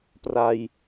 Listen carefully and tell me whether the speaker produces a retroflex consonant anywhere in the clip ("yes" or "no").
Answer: no